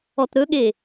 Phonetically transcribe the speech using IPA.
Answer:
ɔtɾɵɠe

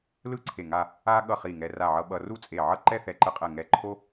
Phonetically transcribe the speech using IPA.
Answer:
lɯ˥ǀʰe˧˩ ŋa˥˧ | a˥ ɠʌ˧˩ χi˧˩ŋɛ˧ ra˧˩ʕʌ˧ ɓʌ˧ru˥˧t͡sʼe˧˩ ʕʌ˥˧ǃɛ˥˧θɛ˧˩ǃɯ˧ qʼɛ˧˩ŋɛ˧˩ ǃʰo˥

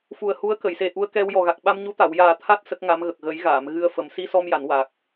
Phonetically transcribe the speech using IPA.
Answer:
fu˨˩ə̯hu˧˥ə̯kə˨˩˨jse˨˩ ʔu˧ə̯kɛ˧w jɔ˨˩ɣa˨˩k̚ɓa˧mɲu˧˥ t̪a˨˩˨wjaː˨˩ t̪ʰa˦˥t̚ sə˦˥k̚ŋa˧˥mɣə˨˩k̚ ɣə˨˩˦jɣaː˨˩˨m ɣɨ˧ə̯fə˨˩˦m si˧sɔ˧mja˨˩˨n wa˨˩k̚

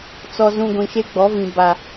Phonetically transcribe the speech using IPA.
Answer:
t͡sɔ˨zũ˨ ɡʷĩ˨ʃe˦ɡ͡bɔ˨˦vĩ˨ ba˨

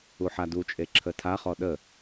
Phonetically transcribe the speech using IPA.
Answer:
uħadut͡ʃʼe ǁʰətʰaχɔ ɗə

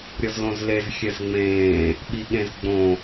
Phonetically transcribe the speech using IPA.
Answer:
ɾʲɤzlõzlez xʲɛzŋ͡mẽː | ɓiɠẽzɡ͡bõ

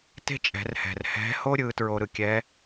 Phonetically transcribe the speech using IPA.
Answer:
te̤˥t͡ʃʼɛ̤˩˧rhɛ̤˩r hɛ̤˧˥ho˥ ɾʲɯ˩˧tɹo˧ɾɯ˩kʲɛ˧˥

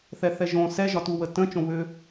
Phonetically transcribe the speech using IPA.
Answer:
θɛθɛʒõ sɛ ʒɒtuwətə̃ t͡ʃõβʏ

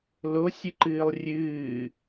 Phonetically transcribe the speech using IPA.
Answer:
losʲɨǃɨːlˠ rʲɨː

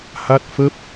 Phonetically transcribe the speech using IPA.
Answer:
ha˦˥t̚fə˦˥p̚

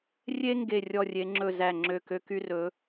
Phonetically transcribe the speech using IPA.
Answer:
rʲe˥ ŋɡe˥˧ rʲɔ˥˧rʲe˧˥ŋ͡ǁɵ˥˧ zæ˥˧ŋ͡ǁø˥˧ kø˥ky˥rɵ˧˥

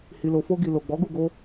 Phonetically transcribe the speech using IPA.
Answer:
hi˨lo˨fo˧ɡi˨ lo˨ɡ͡bɔ˨˦ɡu˦˨ɡo˧

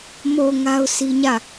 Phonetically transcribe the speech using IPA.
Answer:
mo˨ ŋa˦ʊ̯sʰi˦ɲä˦˨

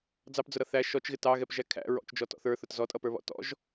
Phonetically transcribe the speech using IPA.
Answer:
d͡zɑpd͡zʊɾʌ θæ ʃɔt͡ʃɣɪ tɑɣɛpʒæ kʰæ̰ ɹɔ̰t͡ʃd͡ʒɔtɔ̰ θə˞θʊt zɔtʼʌpə˞βɔ̰ tɔ̰ʒ

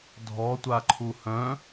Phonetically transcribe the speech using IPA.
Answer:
dʱɔtʷaǃʰu hœ̃

